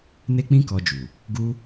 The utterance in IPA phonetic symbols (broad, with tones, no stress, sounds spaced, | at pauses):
n e˦ k͡p ĩ˦ k ɔ˧ d͡ʒ u˨ | ɡ u˦